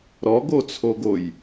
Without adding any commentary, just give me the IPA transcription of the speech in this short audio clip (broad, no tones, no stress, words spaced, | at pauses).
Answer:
ɾɔɡot͡sʰoɡoj